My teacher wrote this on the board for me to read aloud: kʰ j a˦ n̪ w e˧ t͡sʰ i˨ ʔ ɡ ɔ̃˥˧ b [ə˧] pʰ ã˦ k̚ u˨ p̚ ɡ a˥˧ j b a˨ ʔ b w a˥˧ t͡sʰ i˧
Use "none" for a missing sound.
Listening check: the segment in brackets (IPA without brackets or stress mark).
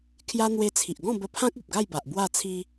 ə˧